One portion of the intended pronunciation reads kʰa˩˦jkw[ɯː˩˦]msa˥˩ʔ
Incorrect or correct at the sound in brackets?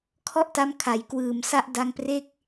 correct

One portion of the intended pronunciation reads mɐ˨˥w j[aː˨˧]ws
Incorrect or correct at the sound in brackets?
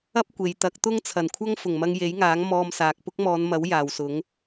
incorrect: aː˨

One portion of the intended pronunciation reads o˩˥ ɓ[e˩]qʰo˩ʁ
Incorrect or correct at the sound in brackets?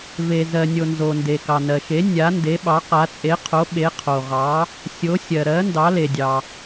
incorrect: e˩˥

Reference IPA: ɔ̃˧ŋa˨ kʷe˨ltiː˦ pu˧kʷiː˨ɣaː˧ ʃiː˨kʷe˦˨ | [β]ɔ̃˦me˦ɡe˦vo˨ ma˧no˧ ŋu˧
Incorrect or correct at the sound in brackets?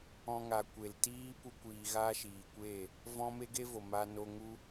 incorrect: v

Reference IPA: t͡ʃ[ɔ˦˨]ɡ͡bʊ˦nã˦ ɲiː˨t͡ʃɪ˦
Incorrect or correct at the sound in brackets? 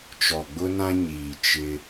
incorrect: ɔ˨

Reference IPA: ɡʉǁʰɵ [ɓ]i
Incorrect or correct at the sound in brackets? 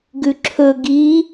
incorrect: ɡ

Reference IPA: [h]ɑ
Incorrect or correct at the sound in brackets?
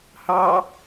correct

